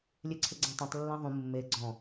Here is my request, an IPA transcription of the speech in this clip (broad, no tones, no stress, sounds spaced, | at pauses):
lʲ e ǀʰ ɪ ɡ͡ǀ ã tˤ õ tˤ lː ã ðˤ ũ mː e ɡ͡ǀ ɔ̃